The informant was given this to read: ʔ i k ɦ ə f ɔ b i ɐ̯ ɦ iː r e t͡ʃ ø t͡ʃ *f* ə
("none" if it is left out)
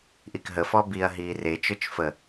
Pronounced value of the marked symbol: f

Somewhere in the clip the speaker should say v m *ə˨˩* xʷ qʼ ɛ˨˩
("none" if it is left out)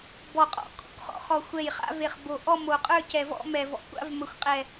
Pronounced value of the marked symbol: ə˨˩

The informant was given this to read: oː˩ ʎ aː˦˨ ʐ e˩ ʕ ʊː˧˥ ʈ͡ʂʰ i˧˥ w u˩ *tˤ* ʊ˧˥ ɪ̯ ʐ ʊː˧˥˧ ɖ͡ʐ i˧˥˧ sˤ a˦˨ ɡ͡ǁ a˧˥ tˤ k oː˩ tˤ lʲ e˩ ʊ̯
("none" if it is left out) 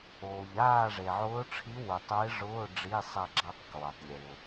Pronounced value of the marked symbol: tˤ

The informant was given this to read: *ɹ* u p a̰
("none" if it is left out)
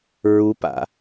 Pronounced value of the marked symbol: ɹ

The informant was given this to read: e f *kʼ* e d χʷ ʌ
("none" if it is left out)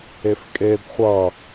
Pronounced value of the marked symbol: kʼ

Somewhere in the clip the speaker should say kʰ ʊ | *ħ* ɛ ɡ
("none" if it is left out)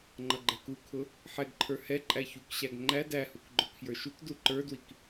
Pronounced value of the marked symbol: ħ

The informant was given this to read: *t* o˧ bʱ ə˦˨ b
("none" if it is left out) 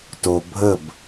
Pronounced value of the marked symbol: t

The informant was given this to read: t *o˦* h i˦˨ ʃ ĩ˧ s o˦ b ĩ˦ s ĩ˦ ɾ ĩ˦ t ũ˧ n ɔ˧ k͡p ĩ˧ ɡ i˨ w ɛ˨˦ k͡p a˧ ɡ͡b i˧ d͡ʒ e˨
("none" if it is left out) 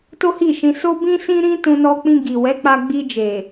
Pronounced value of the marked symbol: o˦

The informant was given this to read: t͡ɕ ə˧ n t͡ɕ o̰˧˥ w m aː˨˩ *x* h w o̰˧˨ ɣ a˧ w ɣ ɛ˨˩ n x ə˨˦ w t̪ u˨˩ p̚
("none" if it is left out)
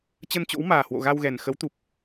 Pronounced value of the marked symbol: none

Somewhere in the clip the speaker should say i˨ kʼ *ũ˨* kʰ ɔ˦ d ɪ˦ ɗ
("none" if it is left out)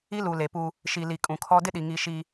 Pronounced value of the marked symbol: ũ˨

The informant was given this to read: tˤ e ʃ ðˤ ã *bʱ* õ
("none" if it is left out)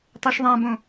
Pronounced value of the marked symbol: b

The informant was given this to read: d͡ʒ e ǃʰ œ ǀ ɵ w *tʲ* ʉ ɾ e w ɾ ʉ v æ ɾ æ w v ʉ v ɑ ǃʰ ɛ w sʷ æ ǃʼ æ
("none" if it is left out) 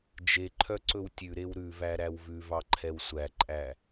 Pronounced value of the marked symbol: tʲ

